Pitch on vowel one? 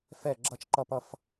falling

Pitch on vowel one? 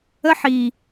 high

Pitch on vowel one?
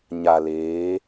low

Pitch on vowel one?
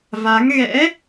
rising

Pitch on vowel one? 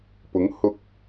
rising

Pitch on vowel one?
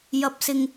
rising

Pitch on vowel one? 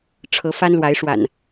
rising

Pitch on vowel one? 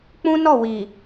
high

